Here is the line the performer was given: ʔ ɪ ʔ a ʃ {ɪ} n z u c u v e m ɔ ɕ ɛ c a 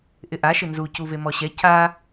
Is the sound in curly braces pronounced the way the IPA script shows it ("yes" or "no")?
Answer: yes